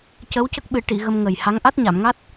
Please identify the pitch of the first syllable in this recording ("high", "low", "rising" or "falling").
rising